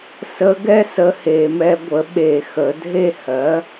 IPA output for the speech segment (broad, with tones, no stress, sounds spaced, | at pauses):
s ə˧˥ ɡ ɛ˥ s ə˧˥ h e˧˩˧ m ɛ˧˥ ɡʷ ə˩˥ ɓ e˧˩˧ x ə˩˧ dʱ e˥˨ h ɜ˩˥